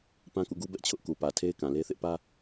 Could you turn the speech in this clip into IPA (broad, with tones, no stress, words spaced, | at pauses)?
pã˦kṵ˦˨ɡu˦bɛ˦ʔ t͡ɕʰʊ˦ʔku˨pä˨ tʰe˦ɪ̯kã˨le˦ θɪ˦ʔpä˦